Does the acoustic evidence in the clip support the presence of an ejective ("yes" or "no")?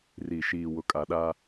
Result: yes